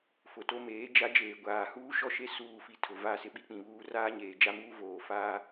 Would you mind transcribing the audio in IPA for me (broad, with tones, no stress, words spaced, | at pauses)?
fʊ˨to˦meː˨˦ d͡ʒa˦d͡ʒeː˨ɡʷaː˨ huː˦ʃɔ˦ʃe˦ suː˦˨fi˦tʰʊ˨ va˦˨sɪ˦ ɓi˦k͡pĩ˨βuː˦ raː˦ɲeː˨d͡ʒa˦muː˦ voː˨ faː˦